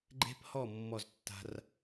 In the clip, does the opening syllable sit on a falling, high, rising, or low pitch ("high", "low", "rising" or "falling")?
high